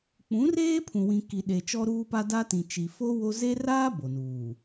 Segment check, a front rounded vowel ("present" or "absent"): absent